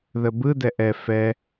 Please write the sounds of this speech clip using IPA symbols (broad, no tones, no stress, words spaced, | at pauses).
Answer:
ðəbɯ dɛʔɛ fɛ